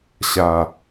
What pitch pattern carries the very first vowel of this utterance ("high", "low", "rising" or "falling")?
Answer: low